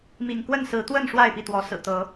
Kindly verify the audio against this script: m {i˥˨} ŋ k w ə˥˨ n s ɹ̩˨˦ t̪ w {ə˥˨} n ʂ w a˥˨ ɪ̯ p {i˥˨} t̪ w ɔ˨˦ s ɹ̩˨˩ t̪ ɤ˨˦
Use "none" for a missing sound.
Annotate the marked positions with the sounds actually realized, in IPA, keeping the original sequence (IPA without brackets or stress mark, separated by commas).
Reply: ḭ˨˩, ə˥˨, i˥˨